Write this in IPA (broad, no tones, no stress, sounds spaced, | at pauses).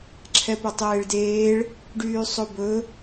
ǁʰ ɛ p ɵ tˤ eː ɭ d eː ɭ | ɖ yː sˤ o b ɵ